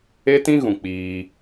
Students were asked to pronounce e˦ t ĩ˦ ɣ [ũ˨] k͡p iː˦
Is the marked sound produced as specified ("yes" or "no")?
yes